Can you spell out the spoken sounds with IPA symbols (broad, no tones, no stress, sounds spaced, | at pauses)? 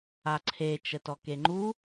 a ǀʰ e t͡ʃ ə t ɔ k e ŋ͡ǃ u